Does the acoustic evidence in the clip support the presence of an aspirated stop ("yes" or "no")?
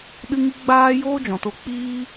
no